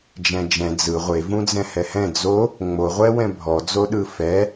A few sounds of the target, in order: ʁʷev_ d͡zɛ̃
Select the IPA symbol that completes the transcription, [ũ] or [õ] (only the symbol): ũ